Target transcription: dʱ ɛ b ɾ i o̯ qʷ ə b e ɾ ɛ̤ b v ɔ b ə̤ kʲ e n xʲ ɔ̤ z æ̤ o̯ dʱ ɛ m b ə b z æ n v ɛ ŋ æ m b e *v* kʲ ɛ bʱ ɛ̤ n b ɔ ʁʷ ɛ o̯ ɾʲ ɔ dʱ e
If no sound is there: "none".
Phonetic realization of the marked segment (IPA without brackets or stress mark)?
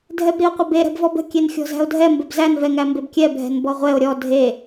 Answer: b